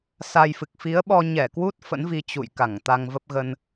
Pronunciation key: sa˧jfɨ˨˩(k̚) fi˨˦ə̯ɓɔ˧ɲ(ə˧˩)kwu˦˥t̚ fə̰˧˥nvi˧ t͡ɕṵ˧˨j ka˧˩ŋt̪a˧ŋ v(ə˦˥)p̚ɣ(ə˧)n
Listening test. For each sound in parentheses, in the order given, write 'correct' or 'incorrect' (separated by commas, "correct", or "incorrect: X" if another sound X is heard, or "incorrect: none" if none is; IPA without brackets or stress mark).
correct, incorrect: ɛ˧˩, correct, correct